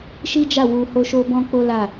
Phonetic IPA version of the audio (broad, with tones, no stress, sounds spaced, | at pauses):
ʃ i˦ d͡ʒ a˦˨ w u˧ h o˦ ʃ o˦ b ɔ̃˦ k͡p o˦ l a˦˨